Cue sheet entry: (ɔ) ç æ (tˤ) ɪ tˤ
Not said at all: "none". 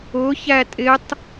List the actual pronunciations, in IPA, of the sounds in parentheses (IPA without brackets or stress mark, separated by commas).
ʊ, tʼ